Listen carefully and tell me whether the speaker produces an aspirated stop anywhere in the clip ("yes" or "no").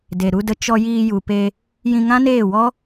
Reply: no